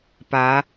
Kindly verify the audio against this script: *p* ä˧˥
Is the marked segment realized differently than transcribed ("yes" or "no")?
no